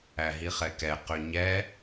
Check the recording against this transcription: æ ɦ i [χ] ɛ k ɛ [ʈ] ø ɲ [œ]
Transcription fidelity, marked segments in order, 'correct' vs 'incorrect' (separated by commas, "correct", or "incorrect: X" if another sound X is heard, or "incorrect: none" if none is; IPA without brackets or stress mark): correct, incorrect: q, incorrect: ɛ